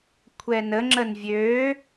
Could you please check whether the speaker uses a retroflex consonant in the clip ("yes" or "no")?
no